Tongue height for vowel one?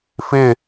high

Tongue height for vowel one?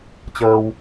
mid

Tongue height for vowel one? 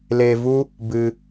mid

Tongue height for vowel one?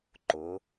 high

